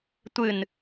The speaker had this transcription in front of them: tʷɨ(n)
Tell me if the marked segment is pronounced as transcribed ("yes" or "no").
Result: yes